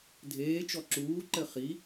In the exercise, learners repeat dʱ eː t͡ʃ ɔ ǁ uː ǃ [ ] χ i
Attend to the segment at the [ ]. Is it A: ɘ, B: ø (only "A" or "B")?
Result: A